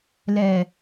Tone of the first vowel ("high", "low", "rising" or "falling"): low